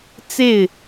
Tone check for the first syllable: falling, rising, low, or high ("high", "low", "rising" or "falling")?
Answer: falling